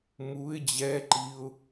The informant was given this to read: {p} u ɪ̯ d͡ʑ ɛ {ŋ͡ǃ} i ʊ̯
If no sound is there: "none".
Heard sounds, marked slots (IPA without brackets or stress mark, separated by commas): m, ǃ